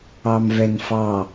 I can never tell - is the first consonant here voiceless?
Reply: no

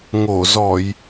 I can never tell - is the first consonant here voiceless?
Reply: no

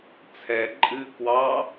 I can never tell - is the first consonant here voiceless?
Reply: yes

